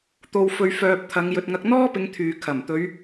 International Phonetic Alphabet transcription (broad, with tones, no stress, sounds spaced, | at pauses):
t̪ o˧ w f ɵ˧ ɥ f œː˧ p̚ t̪ʰ ɐ˨˧ ŋ j ɵ˨ t̚ ŋ ɐ˧ k̚ n̪ ɔː˥ p ɪ˨˧ ŋ t̪ʰ yː˨ kʰ ɐ˨˩ m t̪ ɵ˨˧ ɥ